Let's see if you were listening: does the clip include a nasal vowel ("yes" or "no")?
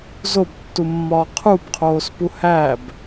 no